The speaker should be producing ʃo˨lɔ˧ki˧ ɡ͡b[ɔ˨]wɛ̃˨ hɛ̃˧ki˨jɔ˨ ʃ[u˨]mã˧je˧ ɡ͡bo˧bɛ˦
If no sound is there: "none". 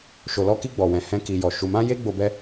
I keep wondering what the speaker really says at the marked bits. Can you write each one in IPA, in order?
ɔ˨, u˨

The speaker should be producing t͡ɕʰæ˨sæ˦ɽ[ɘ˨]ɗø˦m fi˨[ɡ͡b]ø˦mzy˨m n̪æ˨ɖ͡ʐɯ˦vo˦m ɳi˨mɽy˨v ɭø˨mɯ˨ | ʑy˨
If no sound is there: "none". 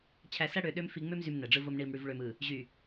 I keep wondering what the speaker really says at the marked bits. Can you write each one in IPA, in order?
ø˨, ŋ͡m

